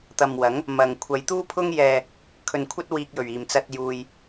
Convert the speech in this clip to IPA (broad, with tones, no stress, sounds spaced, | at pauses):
t̪ ɐ˨ m w ɐ˨˥ ŋ | m ɐ˧ ŋ kʷʰ ɐ˨˧ j t̪ uː˥ pʰ ʊ˥ ŋ j ɛː˧ | kʰ ɵ˧ n kʷʰ ɐ˥ t̚ w iː˧ k̚ j ɵ˨˩ ɥ iː˨˩ m t͡s ɐ˧ t̚ j uː˧ j